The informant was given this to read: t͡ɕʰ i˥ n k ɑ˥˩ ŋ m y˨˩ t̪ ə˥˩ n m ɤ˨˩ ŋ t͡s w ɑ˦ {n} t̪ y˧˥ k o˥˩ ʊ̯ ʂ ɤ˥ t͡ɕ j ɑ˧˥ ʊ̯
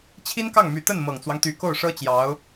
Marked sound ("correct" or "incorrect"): incorrect